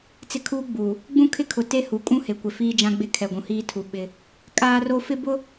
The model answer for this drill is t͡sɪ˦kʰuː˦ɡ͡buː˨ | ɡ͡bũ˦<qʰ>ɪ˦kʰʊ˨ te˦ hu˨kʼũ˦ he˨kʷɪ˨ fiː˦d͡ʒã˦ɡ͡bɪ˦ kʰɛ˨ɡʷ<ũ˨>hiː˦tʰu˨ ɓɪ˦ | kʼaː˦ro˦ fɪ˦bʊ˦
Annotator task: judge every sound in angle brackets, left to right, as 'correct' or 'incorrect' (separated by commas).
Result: incorrect, correct